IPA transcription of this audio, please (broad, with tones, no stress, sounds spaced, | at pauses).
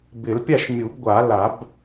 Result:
b ɪ˨˩˦ l pʲ a˥˨ ʃ mʲ u˨˩˦ b ɡʷ a˨˩˦ l a˨˩˦ b